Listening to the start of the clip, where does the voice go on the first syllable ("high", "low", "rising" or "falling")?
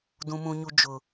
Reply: high